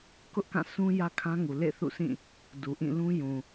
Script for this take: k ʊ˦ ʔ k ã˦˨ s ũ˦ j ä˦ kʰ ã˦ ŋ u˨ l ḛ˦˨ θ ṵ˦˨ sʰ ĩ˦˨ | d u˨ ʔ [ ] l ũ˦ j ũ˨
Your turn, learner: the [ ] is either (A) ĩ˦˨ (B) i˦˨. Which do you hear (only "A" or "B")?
A